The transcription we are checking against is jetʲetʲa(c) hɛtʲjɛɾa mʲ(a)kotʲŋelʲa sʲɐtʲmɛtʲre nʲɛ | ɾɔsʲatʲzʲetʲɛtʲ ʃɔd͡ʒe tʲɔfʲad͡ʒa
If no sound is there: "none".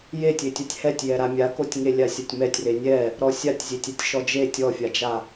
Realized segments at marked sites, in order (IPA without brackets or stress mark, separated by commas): tʲ, a